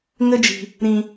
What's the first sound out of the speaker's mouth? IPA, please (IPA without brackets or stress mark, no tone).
ŋ